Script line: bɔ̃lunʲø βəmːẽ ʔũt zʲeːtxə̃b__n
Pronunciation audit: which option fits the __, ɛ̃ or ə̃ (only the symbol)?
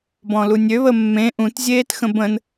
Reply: ə̃